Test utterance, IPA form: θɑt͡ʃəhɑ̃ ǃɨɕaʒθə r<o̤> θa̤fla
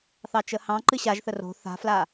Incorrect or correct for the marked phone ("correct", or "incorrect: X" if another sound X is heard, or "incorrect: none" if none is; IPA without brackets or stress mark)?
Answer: correct